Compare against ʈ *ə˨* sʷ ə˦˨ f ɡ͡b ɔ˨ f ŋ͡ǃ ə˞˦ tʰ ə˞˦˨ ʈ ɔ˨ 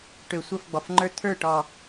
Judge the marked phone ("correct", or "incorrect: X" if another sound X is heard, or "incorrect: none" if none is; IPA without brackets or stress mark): incorrect: ø˨